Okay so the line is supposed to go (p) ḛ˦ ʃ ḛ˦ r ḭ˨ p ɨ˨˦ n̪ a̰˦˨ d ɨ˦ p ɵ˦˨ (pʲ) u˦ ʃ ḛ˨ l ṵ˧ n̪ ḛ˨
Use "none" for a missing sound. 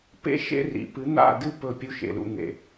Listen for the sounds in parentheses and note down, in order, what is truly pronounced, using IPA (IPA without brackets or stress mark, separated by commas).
p, pʲ